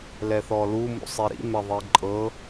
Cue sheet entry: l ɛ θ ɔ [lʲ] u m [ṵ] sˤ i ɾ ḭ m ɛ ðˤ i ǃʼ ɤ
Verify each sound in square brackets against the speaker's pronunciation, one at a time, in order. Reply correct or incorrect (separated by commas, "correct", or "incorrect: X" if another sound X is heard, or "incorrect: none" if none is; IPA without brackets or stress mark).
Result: incorrect: l, correct